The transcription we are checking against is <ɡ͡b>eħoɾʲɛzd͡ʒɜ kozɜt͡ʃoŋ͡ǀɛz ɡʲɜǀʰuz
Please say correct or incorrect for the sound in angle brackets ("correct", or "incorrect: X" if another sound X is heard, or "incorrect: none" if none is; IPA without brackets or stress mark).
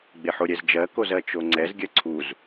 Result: correct